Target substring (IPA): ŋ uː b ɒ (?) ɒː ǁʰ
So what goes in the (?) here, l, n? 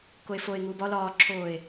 l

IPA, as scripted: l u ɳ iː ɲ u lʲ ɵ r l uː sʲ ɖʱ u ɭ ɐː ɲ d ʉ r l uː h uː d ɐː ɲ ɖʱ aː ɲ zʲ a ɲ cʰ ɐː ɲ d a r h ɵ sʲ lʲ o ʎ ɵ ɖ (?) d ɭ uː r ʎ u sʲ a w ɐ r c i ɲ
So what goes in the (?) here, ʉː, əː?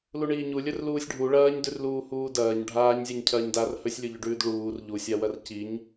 ʉː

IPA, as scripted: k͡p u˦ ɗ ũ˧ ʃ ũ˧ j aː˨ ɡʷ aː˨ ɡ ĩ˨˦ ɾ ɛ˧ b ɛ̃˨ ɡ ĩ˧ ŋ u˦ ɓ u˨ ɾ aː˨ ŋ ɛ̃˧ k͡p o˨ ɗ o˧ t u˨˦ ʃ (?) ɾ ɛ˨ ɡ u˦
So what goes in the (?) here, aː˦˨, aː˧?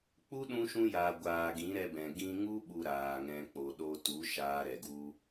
aː˧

